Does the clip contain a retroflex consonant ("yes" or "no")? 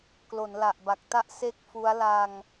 no